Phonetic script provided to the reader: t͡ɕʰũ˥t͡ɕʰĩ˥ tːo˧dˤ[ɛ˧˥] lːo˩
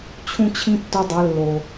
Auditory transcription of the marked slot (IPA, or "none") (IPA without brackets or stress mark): ɛ˩˧